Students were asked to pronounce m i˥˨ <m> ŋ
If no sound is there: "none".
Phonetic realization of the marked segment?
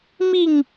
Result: none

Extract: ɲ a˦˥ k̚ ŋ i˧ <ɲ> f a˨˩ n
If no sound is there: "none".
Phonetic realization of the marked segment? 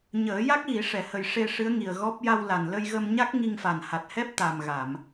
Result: ŋ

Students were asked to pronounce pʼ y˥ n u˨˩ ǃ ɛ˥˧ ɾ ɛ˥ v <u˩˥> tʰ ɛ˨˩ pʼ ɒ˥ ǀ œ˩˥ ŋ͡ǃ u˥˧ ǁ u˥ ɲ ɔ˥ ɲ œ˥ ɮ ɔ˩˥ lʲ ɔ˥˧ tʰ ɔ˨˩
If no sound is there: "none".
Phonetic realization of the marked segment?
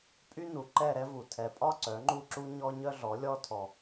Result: u˨˩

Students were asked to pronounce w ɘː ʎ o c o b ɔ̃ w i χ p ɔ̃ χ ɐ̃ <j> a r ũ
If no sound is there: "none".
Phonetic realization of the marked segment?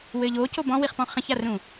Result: ç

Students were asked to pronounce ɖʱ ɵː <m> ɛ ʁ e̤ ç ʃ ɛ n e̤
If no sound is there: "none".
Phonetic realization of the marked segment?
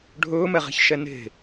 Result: m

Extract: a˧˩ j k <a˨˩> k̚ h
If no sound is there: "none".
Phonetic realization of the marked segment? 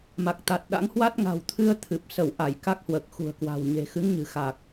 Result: a˦˥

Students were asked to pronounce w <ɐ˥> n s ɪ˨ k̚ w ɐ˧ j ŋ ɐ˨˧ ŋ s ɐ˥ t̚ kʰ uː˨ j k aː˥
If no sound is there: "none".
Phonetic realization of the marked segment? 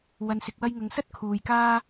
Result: ɐ˨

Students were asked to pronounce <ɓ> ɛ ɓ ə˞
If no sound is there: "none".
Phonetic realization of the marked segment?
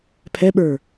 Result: pʰ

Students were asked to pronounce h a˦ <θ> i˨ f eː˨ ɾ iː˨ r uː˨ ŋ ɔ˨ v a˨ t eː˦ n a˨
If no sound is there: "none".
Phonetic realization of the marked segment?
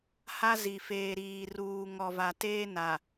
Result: z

